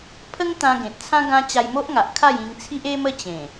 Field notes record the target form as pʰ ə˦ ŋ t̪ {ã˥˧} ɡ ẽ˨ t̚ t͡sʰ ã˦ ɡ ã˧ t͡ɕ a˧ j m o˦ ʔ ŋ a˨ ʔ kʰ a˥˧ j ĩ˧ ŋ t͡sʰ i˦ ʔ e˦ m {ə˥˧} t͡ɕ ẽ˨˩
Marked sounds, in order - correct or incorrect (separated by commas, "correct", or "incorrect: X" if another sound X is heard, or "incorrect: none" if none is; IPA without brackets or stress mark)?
incorrect: ã˧, correct